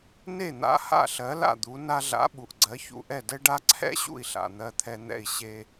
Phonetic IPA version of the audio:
n e˥˩ n̪ a̰˧ h a̰˥˩ ɬ ɜ˩˥ l a̰˥˩ d̪ u˩˥ n a˧ ɮ a̰˩˥ ɓ u˩ ʔ ɡ͡ǀ ɜ˩˥ ç ṵ˧ ʔ ɛ˥˩ d ɛ˥ ɖ a˥ ǀʰ ɛ̰˥ ɕ ṵ˥˩ i̯ ɬ a̰˩ n̪ ɜ˧ t̪ʰ ɛ˧ n̪ ɛ̰˥˩ i̯ ɕ e˧

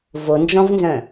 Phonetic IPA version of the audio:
v o n d͡ʒ ɔ̃ v n z œ̃

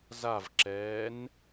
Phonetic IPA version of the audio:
z a v ǁ ɛː n

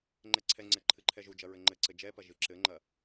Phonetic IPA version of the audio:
ŋ͡ǃ ɛ ǀʰ ɛ ŋ͡ǀ ɛ ǃʰ ɨ ǃʰ ɛ ʒ u d͡ʒ ɐ ɹ ɘ ŋ͡ǃ ɘ ǀ ɘ d͡ʒ ɛ p ɐ ʒ ɨ ǁ ɘ ŋ͡ǃ ɐ

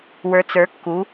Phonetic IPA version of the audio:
w ə˞˩˥ t͡s ə˞˩˥ kː u˩˥

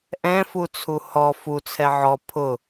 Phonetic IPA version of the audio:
ʔ ɛ̃ f u t͡sʰ u h ɔ f u t͡sʰ ɛ ʕ ɔ pʰ ʊ

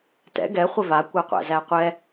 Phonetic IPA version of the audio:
t ɛ̰ ɡ ɛ χʷ ɪ v a kʷ æ qʷ æ̰ z æ qʷ ɛ

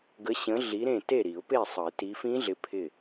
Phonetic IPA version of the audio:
ɡ ə˨˦ ɕ ə̃˨˦ ɮ i˨˦ ɾ ẽ˥˨ t e˥˨ ɾ i˨˩˦ ʊ̯ p e˥˨ sˤ ə˨˩˦ ɪ̯ t i˨˦ f ĩ˦˥ ɮ ɪ˨˦ pʰ ɪ˧˩

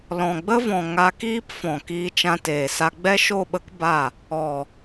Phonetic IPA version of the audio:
l ɔ̃˨ ɡ͡b ə˦ v ɔ̃˨ ŋ a˧ k iː˦ p f ɔ̃˨ k iː˧ t͡ʃ ã˧ t eː˨ s a˧ ɡ͡b ɛ˦ ʃ o˦˨ ɓ ə˦ k b a˦˨ | ɔ˨

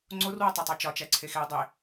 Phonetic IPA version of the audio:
ŋ͡ǀ o r w ɒ tˤ e tˤ æ t͡ʃ ɒ t͡ʃ æ ǀʰ e x e ɐ̯ dˤ e

